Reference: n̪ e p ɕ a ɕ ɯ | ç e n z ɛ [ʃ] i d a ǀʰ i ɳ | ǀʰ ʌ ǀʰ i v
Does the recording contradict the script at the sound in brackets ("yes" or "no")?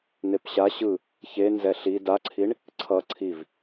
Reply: yes